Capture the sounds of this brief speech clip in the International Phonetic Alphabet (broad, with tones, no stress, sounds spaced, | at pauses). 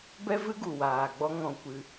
b ɛ˦ v ɨ˦ ɡ u˨ w aː˨ ɡ͡b ɔ˦ ŋ ɔ̃˧ kʷ ɨ˧